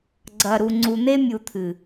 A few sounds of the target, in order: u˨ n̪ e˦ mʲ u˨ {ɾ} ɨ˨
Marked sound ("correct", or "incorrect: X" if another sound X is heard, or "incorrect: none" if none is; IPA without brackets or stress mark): incorrect: t̪ʰ